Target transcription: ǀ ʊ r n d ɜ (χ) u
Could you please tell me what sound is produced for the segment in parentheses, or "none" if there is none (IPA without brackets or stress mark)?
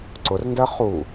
χ